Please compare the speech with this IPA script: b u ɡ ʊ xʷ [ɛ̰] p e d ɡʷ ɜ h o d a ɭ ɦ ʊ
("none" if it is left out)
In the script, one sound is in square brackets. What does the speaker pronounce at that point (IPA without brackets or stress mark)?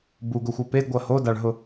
ɛ